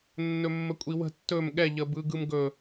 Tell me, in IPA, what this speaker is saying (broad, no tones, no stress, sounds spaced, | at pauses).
nː ɵ mː ə kʷʼ i w ə̤ tː ɵ m ɠ ɛ ʎ ə b ɯ ɡ ɯ m ɡ ɵ